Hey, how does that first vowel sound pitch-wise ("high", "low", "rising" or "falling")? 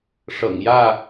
low